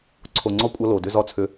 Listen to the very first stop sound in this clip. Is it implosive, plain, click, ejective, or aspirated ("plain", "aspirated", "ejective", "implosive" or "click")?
click